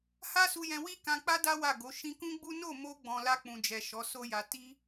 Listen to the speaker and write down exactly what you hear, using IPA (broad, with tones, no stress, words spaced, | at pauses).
ha˦su˧jɛ̃˧ wi˦ kã˧k͡pa˦da˦ wa˦˨ɡo˨˦ ʃĩ˧kũ˦ɡ͡bu˦ no˦˨mo˧ɡ͡bɔ̃˨ la˧k͡pũ˨d͡ʒɛ˨ ʃɔ˨˦so˦ja˧ ti˦